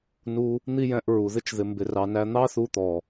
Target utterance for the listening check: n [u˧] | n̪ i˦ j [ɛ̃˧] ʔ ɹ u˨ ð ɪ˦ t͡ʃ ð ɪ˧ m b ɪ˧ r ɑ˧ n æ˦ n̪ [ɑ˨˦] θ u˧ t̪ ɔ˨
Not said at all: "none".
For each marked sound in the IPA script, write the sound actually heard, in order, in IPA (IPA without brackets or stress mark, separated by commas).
u˧, ɛ̃˧, ɑ˦